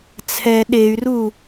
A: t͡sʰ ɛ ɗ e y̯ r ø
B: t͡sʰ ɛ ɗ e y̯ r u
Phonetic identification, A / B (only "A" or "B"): B